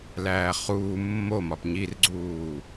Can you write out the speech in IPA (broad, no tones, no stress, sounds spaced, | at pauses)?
l æː χ uː mː o m ɒ p ɲ i r ɡ͡ǀ uː